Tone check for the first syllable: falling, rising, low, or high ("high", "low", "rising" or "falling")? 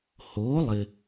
rising